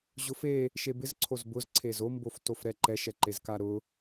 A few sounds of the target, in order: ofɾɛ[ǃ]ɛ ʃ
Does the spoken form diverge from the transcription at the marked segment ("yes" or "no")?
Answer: no